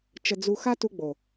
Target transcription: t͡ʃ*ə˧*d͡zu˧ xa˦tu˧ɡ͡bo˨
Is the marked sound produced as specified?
yes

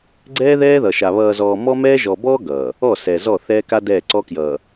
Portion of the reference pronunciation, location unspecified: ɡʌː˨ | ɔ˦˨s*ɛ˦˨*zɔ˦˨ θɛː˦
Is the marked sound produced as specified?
no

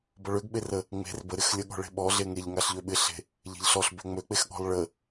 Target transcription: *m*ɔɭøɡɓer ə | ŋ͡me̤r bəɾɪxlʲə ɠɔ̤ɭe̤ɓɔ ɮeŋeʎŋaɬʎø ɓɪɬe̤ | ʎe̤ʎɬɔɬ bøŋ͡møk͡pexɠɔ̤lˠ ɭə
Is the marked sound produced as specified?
no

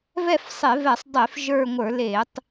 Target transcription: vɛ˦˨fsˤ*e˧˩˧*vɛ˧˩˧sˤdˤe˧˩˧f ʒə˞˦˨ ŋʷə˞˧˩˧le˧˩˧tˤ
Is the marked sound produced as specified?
yes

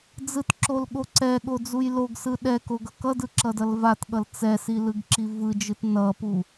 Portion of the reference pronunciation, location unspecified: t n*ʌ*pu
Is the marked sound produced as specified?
yes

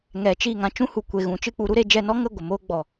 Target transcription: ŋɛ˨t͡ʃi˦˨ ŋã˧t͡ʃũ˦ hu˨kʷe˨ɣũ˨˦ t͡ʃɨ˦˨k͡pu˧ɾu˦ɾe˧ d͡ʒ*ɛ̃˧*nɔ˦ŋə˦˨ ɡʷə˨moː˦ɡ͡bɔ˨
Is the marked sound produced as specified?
no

